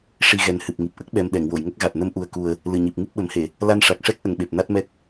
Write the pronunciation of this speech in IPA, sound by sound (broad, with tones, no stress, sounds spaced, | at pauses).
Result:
ʂ i˧ ɣ ɛ˨˩ n h ɨ˨˩ p̚ ŋ i˨˩ p̚ ʔ ə˦˥ k̚ ɓ ɛ˧ m ɗ ɛ˨˩˨ ŋ w o˨˩˨ j ŋ ə˦˥ k̚ ɣ a˨˩ t̚ n ə˧ m ʔ u˨˩ ə̯ k u˨˩ ə̯ | l ɨ˨˩ ɲ i˨˩ p̚ ŋ ɨ˦˥ p̚ ɓ ə˨˩˦ m h e˨˩˨ | l a˧ n ʂ a˨˩ k̚ ʂ ɛ˦˥ k̚ ʔ ə˨˩ ŋ ɓ e˨˩ p̚ n a˦˥ t̚ m ɛ˦˥ k̚